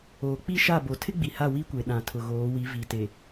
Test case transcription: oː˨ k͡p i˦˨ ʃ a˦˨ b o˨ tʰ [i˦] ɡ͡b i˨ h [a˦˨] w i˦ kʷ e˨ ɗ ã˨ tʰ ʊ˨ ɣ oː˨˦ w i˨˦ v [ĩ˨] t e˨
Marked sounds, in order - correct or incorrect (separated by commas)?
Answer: incorrect, correct, incorrect